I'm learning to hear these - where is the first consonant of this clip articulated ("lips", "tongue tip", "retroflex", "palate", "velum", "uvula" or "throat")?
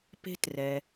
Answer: lips